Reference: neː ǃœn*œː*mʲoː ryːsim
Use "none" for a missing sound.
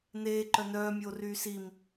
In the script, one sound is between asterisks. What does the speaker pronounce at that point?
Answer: œː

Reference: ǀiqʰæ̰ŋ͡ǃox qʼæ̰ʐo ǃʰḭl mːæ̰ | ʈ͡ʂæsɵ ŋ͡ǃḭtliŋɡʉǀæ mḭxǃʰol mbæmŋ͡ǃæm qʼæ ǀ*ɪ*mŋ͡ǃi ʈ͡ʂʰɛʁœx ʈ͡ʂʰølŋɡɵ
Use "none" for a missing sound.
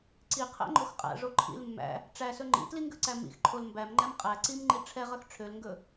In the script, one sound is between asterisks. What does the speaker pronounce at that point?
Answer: i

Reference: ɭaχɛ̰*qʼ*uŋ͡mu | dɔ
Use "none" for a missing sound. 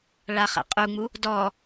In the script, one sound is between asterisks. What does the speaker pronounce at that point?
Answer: qʼ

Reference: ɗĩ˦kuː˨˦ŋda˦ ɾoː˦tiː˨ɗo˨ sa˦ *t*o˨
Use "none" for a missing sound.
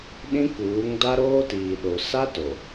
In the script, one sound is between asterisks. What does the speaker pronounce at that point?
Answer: t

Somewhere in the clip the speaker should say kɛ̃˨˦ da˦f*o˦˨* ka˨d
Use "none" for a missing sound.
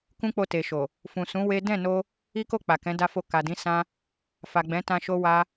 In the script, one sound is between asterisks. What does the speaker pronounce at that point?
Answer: o˦˨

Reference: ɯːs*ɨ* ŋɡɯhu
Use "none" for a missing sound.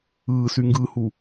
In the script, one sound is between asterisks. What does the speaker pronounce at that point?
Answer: y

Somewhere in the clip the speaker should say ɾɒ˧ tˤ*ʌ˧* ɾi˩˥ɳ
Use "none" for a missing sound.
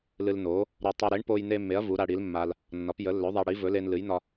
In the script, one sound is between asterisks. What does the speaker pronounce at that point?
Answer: ə˧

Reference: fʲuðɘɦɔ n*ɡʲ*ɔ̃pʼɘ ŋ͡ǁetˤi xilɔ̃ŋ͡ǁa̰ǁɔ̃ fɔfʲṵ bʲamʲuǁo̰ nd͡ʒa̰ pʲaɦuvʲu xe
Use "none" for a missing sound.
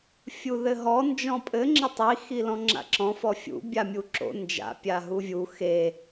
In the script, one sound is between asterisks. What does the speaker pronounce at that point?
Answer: d͡ʒ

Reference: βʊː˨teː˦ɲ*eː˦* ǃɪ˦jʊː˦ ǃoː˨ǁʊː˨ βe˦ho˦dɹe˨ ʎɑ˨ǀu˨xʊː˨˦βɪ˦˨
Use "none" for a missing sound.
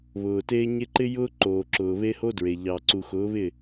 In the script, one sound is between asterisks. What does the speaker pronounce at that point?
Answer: e˦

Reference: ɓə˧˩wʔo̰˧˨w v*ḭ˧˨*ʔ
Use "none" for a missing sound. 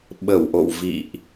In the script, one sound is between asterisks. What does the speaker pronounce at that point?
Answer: ḭ˧˨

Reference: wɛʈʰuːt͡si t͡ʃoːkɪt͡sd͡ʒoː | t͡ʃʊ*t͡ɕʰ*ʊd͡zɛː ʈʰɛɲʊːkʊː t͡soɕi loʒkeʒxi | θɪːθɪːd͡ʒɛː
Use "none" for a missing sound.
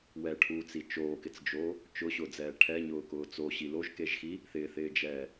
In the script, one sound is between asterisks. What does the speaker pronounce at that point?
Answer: ɕ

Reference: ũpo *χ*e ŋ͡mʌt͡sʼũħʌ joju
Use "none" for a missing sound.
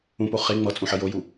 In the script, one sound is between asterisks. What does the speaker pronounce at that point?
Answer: χ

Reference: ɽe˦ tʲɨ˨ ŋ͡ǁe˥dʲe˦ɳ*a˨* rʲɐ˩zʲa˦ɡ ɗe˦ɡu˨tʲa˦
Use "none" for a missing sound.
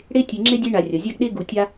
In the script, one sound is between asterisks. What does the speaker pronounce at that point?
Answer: a˨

